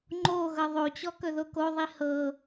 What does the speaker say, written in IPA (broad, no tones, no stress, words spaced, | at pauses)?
ŋ͡ǃo ɣɤðˤot͡ɕɔ kɵðokoðˤi hɤ